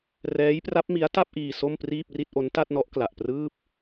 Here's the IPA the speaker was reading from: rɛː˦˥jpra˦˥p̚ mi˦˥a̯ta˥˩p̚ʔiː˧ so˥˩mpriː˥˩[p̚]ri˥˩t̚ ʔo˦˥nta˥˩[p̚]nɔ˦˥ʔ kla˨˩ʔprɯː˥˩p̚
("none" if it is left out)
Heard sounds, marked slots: p̚, t̚

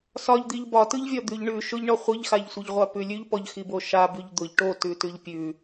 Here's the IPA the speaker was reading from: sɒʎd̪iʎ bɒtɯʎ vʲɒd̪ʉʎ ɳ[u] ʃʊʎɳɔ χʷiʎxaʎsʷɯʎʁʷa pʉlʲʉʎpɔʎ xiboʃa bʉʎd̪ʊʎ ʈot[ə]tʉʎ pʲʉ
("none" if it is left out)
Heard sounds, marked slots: ʉ, ʉ

